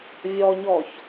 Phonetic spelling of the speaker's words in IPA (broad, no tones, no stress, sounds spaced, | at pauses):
vʲ ɔ ɲ ɔ ç